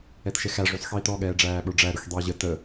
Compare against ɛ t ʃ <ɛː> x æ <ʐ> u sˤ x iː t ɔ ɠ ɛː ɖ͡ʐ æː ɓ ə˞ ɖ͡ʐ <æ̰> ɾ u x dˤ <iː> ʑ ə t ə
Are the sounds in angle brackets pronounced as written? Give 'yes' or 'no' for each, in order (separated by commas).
no, yes, no, yes